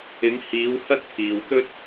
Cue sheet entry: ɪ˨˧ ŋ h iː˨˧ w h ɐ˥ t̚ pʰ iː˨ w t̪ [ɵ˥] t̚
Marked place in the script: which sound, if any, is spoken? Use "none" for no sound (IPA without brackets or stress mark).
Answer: ɵ˥